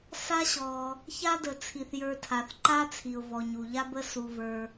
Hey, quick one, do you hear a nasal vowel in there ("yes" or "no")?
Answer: no